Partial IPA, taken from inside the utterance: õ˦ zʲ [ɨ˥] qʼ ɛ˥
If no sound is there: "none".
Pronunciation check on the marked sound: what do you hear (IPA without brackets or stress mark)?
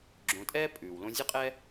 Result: ɨ˥